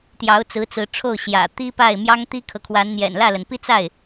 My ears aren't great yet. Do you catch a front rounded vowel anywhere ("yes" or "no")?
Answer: no